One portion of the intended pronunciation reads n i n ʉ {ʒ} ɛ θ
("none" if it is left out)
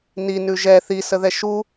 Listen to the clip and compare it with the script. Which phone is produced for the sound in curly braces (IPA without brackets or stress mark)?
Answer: ʒ